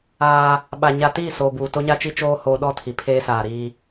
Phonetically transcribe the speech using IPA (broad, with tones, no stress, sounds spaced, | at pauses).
aː˦ | ɓ a˨ ɲ a˨ t iː˦˨ s oː˨ b uː˨ t o˦ ɲ a˦ t͡ʃ i˦ t͡ʃ oː˦ h oː˨ ɗ ɔ˦ tʰ i˨ pʰ eː˦ s aː˨ ɾ iː˦